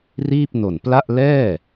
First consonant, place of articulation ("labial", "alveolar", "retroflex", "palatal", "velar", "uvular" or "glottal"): alveolar